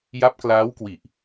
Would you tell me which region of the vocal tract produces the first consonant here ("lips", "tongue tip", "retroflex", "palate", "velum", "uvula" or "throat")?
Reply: palate